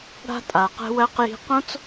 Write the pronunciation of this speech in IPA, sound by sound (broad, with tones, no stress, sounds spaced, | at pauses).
ɽ a̤˧ tʼ a˨ q ɛ̤˧ w ɜ˧ q j i̤˦ q õ˦ t͡s